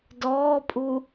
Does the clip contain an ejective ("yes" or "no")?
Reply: yes